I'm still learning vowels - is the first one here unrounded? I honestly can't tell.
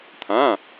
yes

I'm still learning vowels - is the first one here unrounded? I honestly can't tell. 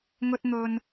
no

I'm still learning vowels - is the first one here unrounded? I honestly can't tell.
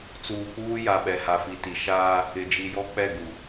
no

